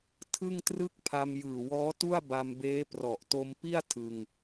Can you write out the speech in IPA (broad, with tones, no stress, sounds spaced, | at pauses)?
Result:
tʰ ɯ˥˩ ŋ t r ɯ˥˩ k̚ pʰ a˧ m j ɯː˨˩ w ɔː˦˥ t u˥˩ a̯ b a˧ m b eː˦˥ p r ɔ˨˩ ʔ t o˧ m p i˥˩ a̯ tʰ ɯ˧ ŋ